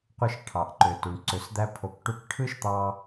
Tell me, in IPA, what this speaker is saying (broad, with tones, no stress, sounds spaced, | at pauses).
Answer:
qʷ ɯ˧ ʃ ʈʰ ɑ˨ ʔ ǃ ø˨ t u˨ ɳ ǀ ø˨ s d̪ æ˧ pʰ o˨˦ k ʈ u˧ k ʈʰ ɯ˦ ʃ t̪ ɑ˧